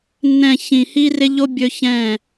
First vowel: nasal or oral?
nasal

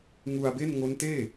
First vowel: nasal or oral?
oral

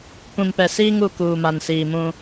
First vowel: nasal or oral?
nasal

